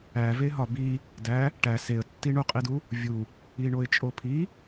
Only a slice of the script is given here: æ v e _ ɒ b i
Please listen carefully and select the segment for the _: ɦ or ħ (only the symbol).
ɦ